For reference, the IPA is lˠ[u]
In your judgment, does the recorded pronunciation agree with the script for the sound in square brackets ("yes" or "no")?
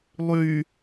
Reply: no